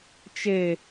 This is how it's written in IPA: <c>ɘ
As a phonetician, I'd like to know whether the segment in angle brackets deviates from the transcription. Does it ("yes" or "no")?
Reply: yes